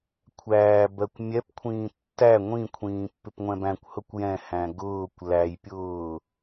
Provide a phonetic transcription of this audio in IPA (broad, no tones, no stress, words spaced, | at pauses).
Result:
kʷʰæːbɜkʷ mʲɛpkʷʰĩː tːæ ŋʷĩkʷʰĩː pːɪpŋʷɛ̃bæ̃kʷhʊkʷ jɛ̃hæ̃ ɡʊːkʷ læjpʲʊː